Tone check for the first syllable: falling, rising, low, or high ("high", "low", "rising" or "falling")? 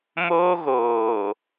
high